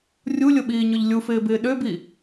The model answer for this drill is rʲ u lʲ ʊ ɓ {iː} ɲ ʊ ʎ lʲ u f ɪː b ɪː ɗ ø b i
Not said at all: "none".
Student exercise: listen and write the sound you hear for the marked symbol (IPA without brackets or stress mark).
iː